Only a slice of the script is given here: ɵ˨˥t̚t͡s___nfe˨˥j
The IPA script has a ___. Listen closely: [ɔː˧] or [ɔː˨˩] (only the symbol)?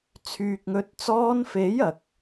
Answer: ɔː˧